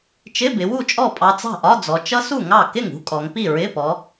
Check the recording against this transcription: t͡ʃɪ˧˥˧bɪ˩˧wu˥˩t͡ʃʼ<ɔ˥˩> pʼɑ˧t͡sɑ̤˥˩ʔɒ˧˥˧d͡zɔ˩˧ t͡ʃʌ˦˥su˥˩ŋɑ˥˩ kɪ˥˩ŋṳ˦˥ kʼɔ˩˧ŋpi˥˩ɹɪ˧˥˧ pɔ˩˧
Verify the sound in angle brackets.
correct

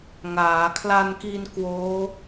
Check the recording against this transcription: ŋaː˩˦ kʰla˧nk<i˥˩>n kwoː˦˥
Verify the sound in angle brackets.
incorrect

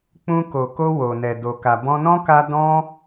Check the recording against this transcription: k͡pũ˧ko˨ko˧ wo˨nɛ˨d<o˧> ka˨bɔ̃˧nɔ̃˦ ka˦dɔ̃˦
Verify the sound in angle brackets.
incorrect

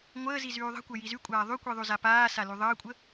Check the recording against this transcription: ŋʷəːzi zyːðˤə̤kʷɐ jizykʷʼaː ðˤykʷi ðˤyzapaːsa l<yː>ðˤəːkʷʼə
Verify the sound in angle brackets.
incorrect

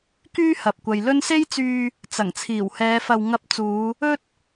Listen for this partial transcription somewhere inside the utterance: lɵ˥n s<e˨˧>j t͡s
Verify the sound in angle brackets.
incorrect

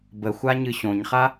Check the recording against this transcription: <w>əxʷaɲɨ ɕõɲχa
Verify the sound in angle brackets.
incorrect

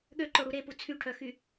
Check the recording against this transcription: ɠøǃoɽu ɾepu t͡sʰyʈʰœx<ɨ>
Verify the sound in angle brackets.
incorrect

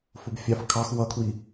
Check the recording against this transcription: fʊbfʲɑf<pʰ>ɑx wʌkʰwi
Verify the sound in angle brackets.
incorrect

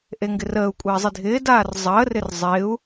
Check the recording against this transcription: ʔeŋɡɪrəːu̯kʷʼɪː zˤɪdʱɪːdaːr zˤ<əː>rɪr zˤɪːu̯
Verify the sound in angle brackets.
correct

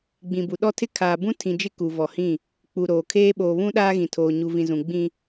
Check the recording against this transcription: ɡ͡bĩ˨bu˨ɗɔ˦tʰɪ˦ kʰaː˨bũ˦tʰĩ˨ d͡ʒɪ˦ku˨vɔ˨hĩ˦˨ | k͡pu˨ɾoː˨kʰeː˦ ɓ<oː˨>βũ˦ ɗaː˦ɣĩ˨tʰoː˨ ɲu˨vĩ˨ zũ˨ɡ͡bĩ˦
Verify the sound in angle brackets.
correct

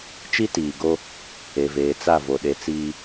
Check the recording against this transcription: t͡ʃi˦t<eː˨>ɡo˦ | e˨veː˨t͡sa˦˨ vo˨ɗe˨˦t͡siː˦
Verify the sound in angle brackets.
incorrect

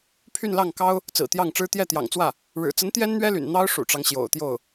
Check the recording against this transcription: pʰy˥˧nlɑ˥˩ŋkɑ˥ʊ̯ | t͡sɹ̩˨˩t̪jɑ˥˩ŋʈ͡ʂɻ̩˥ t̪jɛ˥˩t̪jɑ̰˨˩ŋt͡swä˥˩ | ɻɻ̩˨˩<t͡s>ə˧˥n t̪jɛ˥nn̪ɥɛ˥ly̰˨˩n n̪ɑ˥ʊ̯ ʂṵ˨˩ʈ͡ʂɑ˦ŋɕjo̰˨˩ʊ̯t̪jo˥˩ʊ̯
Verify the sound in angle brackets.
correct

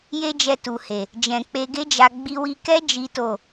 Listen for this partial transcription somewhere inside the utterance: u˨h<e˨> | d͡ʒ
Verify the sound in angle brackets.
correct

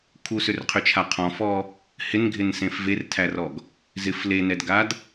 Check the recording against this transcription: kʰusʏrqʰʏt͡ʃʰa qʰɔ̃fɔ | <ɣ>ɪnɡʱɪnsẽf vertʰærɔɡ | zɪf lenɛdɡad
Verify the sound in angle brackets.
incorrect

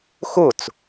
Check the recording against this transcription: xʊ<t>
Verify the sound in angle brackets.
incorrect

